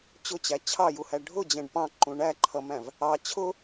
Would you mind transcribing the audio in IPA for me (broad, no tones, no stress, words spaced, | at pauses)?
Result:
t͡ɕʊt͡ɕæ t͡ɕʰɑjuhæ ɖʱʊd͡ʑɛ̃ɖ pɑ̃ǃũ ɳæǃʰʌmæ̃v | ɑ t͡ɕʰʊ